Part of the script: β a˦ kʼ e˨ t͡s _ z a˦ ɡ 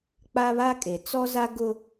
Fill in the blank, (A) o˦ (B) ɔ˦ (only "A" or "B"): B